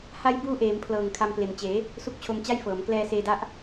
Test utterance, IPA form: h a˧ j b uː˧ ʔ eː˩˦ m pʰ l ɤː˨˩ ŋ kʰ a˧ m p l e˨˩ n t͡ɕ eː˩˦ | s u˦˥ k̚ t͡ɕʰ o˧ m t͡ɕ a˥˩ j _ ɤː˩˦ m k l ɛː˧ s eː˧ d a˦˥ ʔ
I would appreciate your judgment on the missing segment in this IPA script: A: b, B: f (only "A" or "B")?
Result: B